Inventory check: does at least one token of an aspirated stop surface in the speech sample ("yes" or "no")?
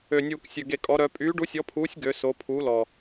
yes